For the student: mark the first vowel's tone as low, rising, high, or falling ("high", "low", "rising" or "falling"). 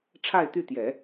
falling